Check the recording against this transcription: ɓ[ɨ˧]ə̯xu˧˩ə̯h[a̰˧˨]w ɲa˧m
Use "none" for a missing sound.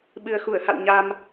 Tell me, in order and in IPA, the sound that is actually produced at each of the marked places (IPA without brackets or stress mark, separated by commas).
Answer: ɨ˨˩, a̰˧˨